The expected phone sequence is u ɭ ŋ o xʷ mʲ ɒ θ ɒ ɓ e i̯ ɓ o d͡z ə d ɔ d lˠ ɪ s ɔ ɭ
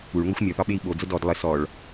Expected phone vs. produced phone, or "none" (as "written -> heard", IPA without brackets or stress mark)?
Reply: none